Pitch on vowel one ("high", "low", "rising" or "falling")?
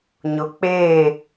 low